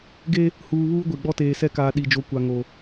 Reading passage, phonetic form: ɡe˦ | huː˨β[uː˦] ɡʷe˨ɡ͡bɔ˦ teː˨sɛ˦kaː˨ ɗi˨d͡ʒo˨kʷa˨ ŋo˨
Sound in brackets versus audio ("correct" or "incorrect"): correct